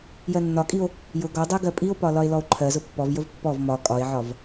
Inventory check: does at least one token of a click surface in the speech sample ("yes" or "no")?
yes